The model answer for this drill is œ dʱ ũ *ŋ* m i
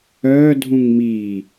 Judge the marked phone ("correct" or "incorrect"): correct